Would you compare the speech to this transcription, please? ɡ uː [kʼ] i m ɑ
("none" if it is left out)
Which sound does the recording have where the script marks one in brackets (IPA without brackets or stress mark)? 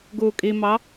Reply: kʼ